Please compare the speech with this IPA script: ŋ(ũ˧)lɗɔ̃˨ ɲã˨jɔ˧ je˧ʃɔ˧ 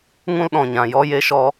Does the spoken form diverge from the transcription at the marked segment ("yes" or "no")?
no